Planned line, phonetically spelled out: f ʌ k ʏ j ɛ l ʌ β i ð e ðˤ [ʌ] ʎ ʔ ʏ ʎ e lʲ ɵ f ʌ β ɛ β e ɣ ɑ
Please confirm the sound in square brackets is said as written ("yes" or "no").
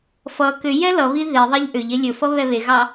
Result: no